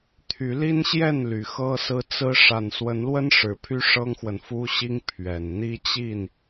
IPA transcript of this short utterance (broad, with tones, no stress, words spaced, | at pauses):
t̪ʰy˨˦li˦nɕjɛ˥˨n ly˨˩xɤ˦sɹ̩˦ t͡sɹ̩˦ ʂa˨˩nswə˨˦nlwə˦n ʂɻ̩˨˦pʰy˦ʂɤ˦ŋxwə˨n fu˦ɕi˦ŋ pʰɥɛ˨˩n n̪i˦t͡ɕi˥˨n